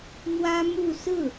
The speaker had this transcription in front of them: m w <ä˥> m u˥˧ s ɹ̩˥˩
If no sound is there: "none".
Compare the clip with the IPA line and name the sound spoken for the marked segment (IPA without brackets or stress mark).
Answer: ä˥